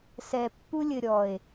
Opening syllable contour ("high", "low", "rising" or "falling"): low